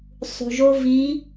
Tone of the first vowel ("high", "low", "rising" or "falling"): low